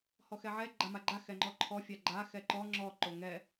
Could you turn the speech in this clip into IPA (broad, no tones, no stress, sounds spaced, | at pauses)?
h ɔ x ɛ ʕ ɛ ɡ͡ǃ a m a ɡ͡ǃ a x ɛ ŋ͡ǃ ɔ ǃʰ ɔ fʲ a ɡ͡ǃ a x ɛ ǃ ɔ ŋ͡ǁ ɔ ǃ o ŋ ɛ